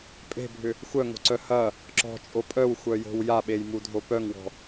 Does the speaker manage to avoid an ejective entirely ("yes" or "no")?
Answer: no